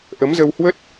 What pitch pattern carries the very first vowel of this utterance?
rising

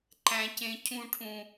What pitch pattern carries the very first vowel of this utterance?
high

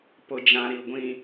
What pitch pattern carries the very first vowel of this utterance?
low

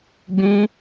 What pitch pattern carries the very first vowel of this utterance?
high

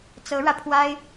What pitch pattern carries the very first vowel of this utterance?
rising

